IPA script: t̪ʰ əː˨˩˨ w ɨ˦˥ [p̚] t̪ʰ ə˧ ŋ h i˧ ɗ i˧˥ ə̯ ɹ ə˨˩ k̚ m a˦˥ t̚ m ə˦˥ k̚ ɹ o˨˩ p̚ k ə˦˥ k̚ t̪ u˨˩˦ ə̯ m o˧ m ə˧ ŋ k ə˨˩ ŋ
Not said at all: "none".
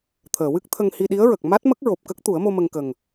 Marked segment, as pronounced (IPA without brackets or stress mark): k̚